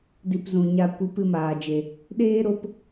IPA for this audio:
di˧pzũ˨ɲa˧ kʷɨ˨˦pɨ˧maː˨d͡ʒe˨ | ɗeː˦ɾo˧p

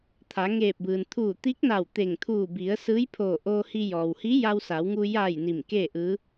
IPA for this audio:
t̪ʰa˩˧ŋeː˧˩p̚bɯː˩n t̪ʰuː˧˩t̪i˧˥k̚na˧˩w t̪e˧˩ŋt̪ʰuː˧˩bi˩˧ə̯ sɯː˧˥jpʰoː˧˩ʔoː˧hi˧ jɔː˩whi˧˥ ja˧wsa˩˧wŋu˧ ja˧˩j ni˧˩mkeː˥˨ʔɯː˧˥

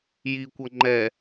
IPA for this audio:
jikʷʌ ŋ͡ǃɛ

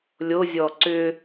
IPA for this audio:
lʲozʲɔ ǀʏ

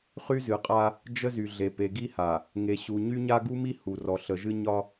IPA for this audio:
χy˦zɨ˨qʼa˦ | d͡ʒə˦zy˨ɮe˨ pe˨ɡi˦ha˨ | ŋe˨ɕu˨ ɲy˦ɲa˦ɡu˦mi˦ hu˨rɔ˨ ɬə˨ʒɨ˦ ɲɒ˦

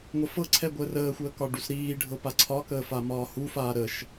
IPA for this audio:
ŋʷəfɤǀʰɛ ɡʷəːrəːxʷəː kɒɖusɾiːɖʱɤ paǀʰɒkəː famɒːhufaː ɾəʃ

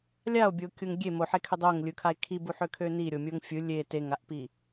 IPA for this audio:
lʲao̯bʲokʲʊŋ ɡʲe moħekʰø dˤoŋlʲɯkʰae̯ kʰibuħøkʰø niɾʲomʲoŋ fʲɯ lʲe teŋaʔpi

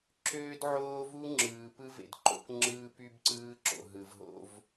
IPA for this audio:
ǁøː˦dʕoː˦ vu˦ŋ͡ǁɯː˨ pɯ˦vḛ˨d ǃo̰˦kŋ͡ǁɯː˦py˦b ǀɯː˦ǁo̰˨ɦɯ˨vɦo̰˦v

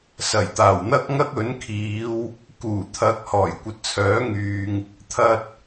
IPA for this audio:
sɐ˨˩jt̪aː˨˩wn̪ɐ˥k̚ ŋɐ˥k̚ɵ˨˥nkʰiː˨˧w | kuː˨˩t̪ʰɐ˨˥k̚ hɔː˨˩jkʷɐ˨t̚t͡sʰœː˨˥ŋyː˨ŋ | t̪ʰɐ˧t̚

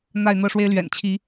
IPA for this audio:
n̪a˥˨ɪ̯n̪ɤ˥˨ʂwe˦ɪ̯ lɥɛ̰˨˩nt͡ɕʰi˨˦

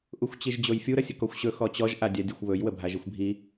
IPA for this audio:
ʔuxʷt͡ɕiʒd͡ʑojfʲu ɾəsʲəkɔxʷɕɵ xɔt͡ɕɔʒ ʔadʲadʲɵxʷβɵj wəbʱaʒixʷbʱi

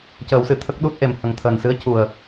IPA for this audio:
cəː˨˩˦wsɨ˨˩˨t̪ʰə˦˥k̚ ɗu˦˥t̚ʔe˨˩m hə˨˩ŋt̪ʰəː˨˩nsɨ˧˥ə̯ cu˨˩ə̯

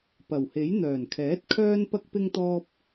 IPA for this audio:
pɐ˨˩whe˨˥j n̪œː˨˩nkʰɛː˨˥t̚ kʰœː˥npɐ˥k̚ pɪ˥ŋt̪ɔː˥p̚

